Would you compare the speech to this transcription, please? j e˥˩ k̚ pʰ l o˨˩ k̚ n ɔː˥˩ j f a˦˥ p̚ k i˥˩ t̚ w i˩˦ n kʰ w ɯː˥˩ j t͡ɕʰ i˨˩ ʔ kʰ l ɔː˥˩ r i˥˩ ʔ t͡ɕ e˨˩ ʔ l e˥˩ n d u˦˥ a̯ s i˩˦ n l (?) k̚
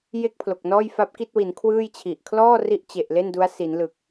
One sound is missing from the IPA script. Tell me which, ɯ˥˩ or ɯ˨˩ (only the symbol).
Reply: ɯ˨˩